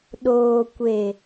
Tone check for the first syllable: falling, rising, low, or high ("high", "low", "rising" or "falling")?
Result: low